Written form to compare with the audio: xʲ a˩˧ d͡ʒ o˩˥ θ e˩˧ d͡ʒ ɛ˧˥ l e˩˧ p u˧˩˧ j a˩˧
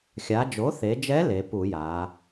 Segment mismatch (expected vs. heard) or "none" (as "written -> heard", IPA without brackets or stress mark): none